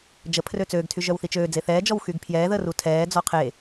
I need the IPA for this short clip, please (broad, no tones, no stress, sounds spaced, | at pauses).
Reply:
d͡ʒ ə pʰ r ø t͡s øː ɡ tʰ y ʒ œ w θ i t͡ʃ øː d͡z e θ ɛː d͡ʒ ɔ w x y ɡ pʰ j ɛː ð əː r u tʰ ɛː d͡z ɔ qʰ e